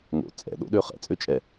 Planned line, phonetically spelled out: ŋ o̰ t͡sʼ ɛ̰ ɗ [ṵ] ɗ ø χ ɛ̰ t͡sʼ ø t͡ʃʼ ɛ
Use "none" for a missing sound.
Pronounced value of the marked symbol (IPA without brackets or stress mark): o̰